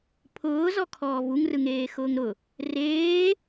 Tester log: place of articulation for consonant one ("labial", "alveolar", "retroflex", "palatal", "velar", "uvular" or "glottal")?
labial